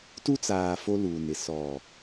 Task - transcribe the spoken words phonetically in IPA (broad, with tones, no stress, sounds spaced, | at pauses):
t u˦ t͡s aː˨ f o˦ l uː˨ n ɪ˨ s ɔ˨